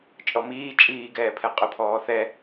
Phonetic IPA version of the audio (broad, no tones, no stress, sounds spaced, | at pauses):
t͡ʃʼ ɔ m iː t͡ʃʼ iː ɡ ɛː pʰ ɛ qʼ ʊ pʰ ɔː θ ɛ